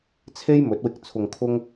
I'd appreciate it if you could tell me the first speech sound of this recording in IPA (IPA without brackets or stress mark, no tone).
t͡sʰ